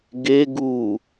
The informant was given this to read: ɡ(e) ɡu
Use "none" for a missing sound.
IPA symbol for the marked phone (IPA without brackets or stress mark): e